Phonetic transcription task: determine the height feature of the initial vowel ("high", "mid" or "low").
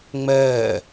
mid